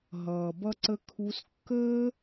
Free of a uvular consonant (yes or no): yes